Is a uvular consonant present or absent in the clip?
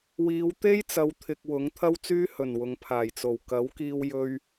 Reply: absent